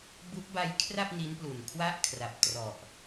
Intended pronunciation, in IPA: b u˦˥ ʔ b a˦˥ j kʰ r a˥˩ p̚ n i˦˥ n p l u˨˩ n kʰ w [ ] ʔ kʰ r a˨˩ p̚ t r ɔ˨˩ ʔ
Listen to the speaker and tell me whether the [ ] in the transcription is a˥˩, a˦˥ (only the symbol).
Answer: a˥˩